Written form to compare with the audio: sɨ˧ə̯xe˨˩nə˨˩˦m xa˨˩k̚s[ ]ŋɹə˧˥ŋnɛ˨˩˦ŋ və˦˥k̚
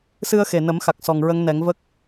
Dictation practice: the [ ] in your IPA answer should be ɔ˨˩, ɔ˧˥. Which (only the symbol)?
ɔ˨˩